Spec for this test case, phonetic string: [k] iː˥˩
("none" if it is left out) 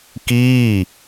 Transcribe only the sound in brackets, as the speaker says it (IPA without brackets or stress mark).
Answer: k